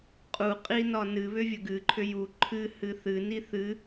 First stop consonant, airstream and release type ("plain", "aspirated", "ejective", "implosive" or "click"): ejective